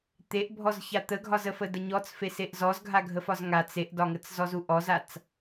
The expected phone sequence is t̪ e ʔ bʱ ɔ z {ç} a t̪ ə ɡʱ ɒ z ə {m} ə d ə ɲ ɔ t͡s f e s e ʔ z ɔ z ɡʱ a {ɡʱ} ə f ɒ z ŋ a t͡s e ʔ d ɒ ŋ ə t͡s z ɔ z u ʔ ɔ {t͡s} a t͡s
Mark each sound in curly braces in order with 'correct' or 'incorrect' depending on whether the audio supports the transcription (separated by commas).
correct, incorrect, correct, incorrect